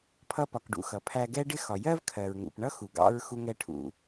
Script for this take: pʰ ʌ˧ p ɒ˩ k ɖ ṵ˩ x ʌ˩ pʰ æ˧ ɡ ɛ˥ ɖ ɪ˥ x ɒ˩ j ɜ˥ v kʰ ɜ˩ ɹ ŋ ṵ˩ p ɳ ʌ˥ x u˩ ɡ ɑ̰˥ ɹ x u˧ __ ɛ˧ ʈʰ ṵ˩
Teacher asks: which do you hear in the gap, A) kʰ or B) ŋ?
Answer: B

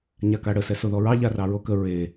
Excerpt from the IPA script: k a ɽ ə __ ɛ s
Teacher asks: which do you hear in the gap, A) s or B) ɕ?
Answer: A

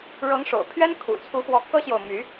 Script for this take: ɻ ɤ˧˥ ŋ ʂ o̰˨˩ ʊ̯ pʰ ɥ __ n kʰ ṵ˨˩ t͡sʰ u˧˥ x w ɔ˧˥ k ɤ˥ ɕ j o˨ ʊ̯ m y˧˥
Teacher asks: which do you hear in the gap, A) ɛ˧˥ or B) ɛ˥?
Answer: B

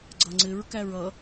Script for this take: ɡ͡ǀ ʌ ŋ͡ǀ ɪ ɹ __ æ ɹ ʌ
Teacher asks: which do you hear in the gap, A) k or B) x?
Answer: A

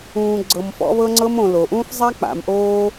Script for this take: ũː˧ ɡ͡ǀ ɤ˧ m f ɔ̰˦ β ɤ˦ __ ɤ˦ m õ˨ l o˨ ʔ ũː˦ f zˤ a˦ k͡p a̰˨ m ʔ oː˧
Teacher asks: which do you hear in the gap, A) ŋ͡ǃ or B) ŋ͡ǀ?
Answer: B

